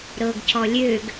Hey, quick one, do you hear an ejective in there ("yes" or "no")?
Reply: no